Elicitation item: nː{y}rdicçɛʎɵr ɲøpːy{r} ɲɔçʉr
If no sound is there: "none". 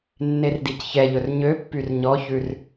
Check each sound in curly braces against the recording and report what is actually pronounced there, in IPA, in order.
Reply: e, r

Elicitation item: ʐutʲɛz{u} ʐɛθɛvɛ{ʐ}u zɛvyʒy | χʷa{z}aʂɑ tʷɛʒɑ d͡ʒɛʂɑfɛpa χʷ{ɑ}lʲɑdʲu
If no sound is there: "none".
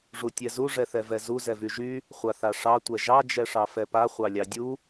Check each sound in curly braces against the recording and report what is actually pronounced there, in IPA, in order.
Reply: u, z, θ, ɑ

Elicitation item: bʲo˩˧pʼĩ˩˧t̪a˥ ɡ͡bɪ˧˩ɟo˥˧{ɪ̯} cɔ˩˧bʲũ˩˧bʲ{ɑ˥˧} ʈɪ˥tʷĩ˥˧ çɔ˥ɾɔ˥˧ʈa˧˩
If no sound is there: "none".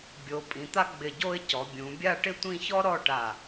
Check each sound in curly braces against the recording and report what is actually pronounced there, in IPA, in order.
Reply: ɪ̯, a˥˧

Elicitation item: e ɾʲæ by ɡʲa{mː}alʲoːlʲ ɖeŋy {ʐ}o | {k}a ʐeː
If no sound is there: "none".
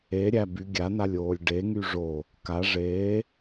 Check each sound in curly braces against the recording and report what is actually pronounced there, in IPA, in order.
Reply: n, ʐ, k

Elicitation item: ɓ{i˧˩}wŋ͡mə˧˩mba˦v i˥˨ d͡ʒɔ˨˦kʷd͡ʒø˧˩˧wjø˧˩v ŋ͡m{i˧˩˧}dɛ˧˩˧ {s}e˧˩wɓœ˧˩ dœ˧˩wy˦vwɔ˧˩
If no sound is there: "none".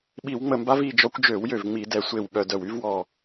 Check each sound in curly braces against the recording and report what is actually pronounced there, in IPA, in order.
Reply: i˧˩˧, i˧˩˧, sʷ

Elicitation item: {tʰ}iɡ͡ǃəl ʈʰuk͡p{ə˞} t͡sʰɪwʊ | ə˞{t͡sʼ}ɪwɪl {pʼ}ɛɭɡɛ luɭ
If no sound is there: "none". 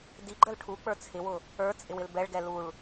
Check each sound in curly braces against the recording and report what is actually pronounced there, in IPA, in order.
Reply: d, ə˞, t͡sʼ, b

